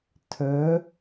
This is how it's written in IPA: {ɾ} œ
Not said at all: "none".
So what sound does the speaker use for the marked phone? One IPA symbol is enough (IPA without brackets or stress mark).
tʰ